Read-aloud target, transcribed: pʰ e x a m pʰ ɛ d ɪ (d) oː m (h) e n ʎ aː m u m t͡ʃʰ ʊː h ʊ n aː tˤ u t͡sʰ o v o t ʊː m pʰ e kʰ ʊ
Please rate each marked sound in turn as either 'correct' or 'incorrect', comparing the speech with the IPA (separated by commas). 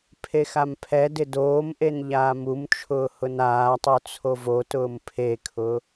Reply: correct, incorrect